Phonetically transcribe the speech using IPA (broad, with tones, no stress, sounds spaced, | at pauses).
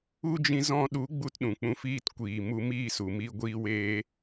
u˦ d͡ʒ ĩ˧ z ɔ̃˧ ɗ u˨˦ ɡ͡b u˦ t ɗ ũ˨ k͡p ũ˧ f iː˦ t kʷ iː˨ m u˧ m iː˦˨ s u˨ m i˧ ɡʷ iː˧ w eː˧